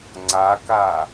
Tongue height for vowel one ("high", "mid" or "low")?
low